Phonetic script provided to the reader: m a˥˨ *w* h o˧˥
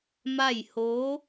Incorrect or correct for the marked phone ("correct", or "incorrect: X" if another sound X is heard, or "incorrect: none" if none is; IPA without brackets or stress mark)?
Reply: incorrect: j